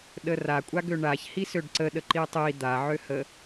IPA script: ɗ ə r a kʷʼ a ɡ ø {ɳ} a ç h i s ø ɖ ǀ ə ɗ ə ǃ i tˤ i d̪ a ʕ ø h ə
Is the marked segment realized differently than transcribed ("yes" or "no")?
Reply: no